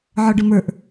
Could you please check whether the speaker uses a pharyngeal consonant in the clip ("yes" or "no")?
yes